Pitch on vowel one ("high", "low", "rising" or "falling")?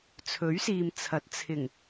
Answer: rising